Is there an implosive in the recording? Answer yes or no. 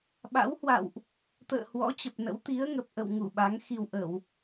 yes